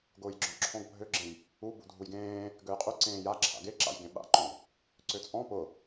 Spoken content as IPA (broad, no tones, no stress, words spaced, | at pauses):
ɡʊːjɡ͡ǁɔ̃ǁʰɔ̃ɡ bʱøɡ͡ǁẽj | ubṵ dʱujɡẽː | ɡøjqʼy ǀẽːja ǁʰa̰ɡe ǁa̰jɡẽɓa̰ǃɔ̃ɡ | ǀøt͡sʼɔ̃ pʊ